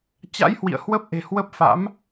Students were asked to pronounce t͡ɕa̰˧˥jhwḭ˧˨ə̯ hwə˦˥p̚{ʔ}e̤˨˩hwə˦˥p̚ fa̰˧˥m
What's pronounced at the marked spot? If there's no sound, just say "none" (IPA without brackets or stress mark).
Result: ʔ